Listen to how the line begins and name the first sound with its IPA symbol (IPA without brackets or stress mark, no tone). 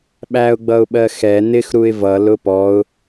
ɓ